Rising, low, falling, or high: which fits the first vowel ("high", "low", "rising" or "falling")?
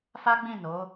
high